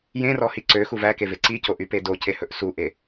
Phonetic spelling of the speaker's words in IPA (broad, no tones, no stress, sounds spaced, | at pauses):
j ẽ r ɔ h i ǀ ø x u v æ k e v e ǀ i c o ʔ y p e d o c e h ɵ ʔ s u ʔ e